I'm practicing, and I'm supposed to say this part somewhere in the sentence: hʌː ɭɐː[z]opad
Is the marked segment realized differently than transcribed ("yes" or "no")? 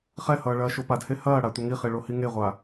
yes